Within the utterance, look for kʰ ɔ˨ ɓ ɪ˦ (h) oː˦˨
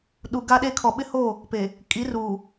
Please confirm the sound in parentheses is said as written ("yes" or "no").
yes